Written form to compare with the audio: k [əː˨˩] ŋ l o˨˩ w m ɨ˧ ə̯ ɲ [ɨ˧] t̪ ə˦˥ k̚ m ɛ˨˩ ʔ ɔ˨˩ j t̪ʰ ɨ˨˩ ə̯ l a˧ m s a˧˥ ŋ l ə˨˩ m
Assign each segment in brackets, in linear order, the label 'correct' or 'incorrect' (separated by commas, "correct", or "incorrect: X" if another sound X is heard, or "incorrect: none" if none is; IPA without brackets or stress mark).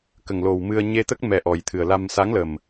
incorrect: ə˨˩, incorrect: e˧